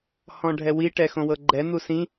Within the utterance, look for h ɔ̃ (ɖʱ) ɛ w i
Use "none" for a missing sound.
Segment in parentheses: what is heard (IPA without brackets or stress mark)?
ɖʱ